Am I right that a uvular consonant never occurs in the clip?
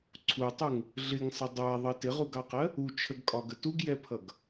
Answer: no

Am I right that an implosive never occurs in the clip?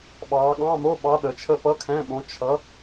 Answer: no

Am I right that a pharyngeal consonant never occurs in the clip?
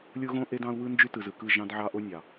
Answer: no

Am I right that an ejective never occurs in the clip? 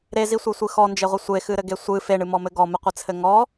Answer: yes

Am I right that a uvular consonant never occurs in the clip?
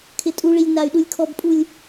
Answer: yes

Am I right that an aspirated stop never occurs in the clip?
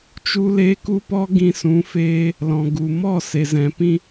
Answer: yes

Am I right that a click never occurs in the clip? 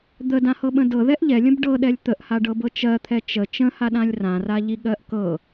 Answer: yes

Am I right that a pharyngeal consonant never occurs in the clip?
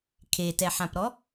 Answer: no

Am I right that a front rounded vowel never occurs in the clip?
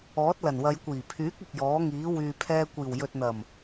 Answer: no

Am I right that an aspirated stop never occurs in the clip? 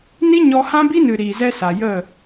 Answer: yes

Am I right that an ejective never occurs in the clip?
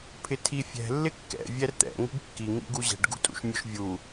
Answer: no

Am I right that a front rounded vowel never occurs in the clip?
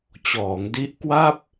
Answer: yes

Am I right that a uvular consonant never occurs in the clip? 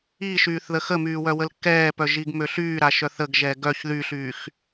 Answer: yes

